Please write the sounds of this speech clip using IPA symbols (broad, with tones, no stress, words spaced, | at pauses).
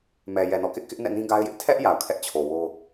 mɛ˨ jɛ˨nɔ̰˦˨kɪ˦ʔkɪ˦ʔ nɛ̰˦˨nĩ˦ɡa˦ɪ̯jɪ˦ʔ tʰɛ˦ʔ ja˨ʊ̯ kʰɛ˦ʔt͡ɕʰo˨wo˦